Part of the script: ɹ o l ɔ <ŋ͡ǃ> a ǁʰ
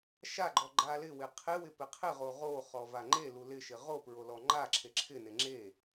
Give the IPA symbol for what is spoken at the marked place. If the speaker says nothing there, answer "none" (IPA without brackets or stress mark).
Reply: ŋ͡ǃ